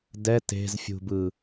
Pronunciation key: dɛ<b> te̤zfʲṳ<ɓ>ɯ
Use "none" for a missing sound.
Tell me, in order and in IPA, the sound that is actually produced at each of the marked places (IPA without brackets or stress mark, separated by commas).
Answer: none, b